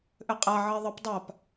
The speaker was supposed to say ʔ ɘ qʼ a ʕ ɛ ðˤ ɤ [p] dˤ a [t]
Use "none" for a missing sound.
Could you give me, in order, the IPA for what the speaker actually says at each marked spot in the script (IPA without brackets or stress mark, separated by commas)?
p, p